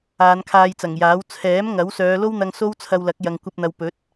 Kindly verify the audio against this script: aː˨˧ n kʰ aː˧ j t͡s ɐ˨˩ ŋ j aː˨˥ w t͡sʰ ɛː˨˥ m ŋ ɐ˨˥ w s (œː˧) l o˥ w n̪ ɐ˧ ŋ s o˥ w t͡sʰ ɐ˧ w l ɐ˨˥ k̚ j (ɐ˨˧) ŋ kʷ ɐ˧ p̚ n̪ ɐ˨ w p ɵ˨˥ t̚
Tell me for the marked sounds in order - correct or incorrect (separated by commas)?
incorrect, incorrect